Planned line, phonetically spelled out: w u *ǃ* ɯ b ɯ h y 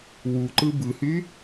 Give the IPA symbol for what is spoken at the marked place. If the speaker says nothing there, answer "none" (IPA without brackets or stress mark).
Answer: ǃ